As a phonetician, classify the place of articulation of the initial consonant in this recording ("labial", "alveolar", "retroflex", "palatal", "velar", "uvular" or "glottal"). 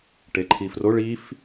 retroflex